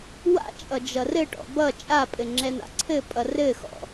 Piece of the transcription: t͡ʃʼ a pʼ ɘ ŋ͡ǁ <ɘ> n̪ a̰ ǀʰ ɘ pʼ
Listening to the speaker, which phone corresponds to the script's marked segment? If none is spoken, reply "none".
ɛ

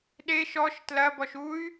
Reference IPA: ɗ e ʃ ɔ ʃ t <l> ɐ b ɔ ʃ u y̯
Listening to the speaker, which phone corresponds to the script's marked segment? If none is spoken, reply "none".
l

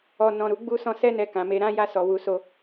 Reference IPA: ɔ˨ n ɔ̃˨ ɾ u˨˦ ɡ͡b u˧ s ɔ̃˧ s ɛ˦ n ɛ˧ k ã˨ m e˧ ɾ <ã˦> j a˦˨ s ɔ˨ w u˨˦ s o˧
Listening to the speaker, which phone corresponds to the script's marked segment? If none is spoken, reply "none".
ã˦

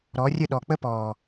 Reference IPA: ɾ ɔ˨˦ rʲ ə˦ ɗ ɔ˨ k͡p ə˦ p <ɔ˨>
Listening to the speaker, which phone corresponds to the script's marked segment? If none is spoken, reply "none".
ɔː˨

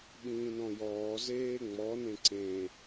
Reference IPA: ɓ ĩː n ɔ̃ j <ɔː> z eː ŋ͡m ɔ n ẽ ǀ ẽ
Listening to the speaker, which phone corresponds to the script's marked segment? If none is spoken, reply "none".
ɔː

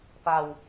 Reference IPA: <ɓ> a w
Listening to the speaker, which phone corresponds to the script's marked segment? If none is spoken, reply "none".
p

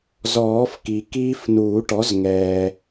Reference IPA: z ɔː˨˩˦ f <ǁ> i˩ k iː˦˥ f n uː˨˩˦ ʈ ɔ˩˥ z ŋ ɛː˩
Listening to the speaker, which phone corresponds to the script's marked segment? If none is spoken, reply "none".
k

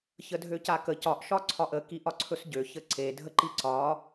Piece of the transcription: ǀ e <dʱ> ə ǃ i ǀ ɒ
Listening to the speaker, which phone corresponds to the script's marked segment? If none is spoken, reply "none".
dʱ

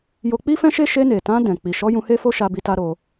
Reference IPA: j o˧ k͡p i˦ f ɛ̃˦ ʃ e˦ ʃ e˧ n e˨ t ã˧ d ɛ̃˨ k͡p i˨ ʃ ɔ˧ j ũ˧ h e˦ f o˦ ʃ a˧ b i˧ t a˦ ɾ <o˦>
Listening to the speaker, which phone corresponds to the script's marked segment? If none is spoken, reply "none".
o˧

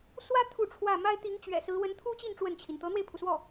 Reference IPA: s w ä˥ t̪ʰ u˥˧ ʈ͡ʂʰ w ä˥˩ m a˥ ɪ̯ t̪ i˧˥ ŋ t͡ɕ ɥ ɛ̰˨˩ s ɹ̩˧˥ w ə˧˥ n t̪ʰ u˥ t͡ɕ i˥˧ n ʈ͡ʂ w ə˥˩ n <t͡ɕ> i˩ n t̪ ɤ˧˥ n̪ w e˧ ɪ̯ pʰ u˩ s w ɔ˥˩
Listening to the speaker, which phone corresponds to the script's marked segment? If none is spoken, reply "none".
t͡ɕʰ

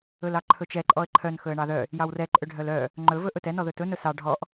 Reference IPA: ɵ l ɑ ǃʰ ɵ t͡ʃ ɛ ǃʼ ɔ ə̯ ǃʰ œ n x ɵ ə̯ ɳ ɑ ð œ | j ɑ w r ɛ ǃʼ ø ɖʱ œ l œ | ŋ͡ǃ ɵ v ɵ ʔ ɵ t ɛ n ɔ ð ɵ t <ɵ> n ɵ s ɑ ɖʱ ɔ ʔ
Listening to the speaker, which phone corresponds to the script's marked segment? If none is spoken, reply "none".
ɵ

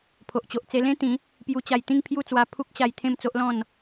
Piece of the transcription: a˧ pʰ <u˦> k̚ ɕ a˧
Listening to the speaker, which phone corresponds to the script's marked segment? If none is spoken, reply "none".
u˦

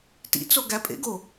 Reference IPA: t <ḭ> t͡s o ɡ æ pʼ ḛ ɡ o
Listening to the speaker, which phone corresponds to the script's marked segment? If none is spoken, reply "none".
ḭ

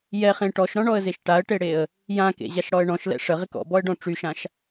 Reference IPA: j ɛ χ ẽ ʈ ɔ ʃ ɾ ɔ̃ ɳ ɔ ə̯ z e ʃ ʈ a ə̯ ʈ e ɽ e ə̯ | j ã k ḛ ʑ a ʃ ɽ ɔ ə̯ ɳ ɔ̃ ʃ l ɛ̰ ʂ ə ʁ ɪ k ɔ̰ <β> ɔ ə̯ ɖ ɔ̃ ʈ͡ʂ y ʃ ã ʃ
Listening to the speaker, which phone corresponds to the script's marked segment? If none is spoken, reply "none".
b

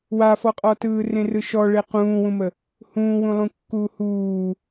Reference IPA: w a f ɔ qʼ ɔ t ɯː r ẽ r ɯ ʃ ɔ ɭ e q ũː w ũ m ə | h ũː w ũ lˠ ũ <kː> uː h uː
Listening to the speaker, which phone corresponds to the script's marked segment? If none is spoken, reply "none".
kː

